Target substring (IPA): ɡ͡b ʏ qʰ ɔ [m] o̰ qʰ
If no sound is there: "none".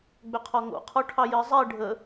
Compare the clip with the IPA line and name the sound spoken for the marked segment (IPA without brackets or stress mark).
ŋ